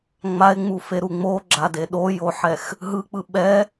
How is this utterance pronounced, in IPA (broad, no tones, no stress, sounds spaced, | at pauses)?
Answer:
ŋ͡m a e̯ ŋ͡m u f e ɾ u ŋ͡m o ɡ͡ǁ a d e ɗ o j o ħ ɛ x | ɦ ɯ k͡p ɯ ɓ ɛ